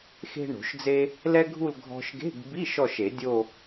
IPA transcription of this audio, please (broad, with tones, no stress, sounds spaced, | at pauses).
x e̤˥ ɳ o̤˨˩˦ ʃ d͡z e˥ | l ɛ˥ ɡʱ u˥˧ l ɡʱ ɔ̤˧ ʃ ɡ e̤˧˥˧ ɡ b i˧˥˧ ʃ ɔ˥˧ ʃ e˨˩˦ dʲ o˥˧